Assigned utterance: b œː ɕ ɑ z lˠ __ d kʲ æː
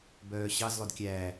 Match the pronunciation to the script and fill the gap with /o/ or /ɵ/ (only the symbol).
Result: ɵ